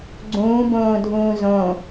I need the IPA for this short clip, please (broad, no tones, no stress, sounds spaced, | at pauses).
ɡ͡ǀ ũː b õː dʱ ũː z õ